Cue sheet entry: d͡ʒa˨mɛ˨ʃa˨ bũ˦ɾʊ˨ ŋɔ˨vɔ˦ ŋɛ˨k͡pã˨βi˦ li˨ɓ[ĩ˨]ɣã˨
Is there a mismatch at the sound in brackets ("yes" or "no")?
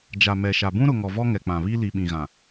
no